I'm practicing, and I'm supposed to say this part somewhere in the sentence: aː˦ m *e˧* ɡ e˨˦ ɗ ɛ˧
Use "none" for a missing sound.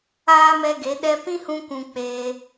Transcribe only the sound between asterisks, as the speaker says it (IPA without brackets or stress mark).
ɛ˧